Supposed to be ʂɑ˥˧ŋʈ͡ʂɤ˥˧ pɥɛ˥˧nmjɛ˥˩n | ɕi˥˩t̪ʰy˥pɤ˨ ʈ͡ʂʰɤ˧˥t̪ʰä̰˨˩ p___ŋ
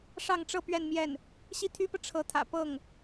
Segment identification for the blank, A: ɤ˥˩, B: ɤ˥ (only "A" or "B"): A